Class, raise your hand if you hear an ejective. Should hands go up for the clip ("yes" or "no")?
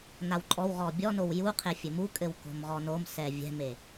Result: yes